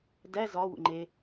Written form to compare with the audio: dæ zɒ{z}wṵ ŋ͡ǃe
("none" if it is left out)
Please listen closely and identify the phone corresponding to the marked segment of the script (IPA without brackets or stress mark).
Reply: none